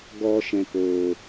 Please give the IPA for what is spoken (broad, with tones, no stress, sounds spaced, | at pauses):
ɡ ɔ˨ ʃ ɛ̃˨ k oː˨